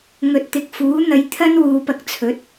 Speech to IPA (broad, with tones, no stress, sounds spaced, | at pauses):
ŋ ɵ˨ t̚ t̪ ɪ˨ k̚ f uː˨˥ n̪ ɐ˨˧ j t̪ʰ ɐ˥ n w uː˨ p ɐ˧ k̚ t͡sʰ ɵ˨˥ t̚